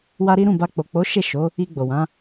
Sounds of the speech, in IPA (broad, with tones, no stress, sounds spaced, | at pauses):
w a˦ ɾ i˦ ɾ ũ˦˨ b a˧ k͡p o˨ k͡p o˨˦ ʃ e˦˨ ʃ o˨˦ | i˧ ɡ͡b o˨ w ã˨˦